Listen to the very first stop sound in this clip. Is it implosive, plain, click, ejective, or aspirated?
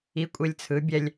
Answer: ejective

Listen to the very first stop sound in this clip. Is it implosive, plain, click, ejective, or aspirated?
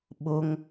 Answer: implosive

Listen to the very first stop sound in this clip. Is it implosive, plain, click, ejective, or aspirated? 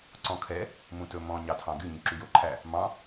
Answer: click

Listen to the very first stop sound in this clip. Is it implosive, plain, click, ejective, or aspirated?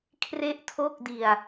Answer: aspirated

